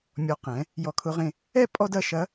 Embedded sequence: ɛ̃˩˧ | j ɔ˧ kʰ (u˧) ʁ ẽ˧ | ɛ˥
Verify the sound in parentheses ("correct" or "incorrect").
incorrect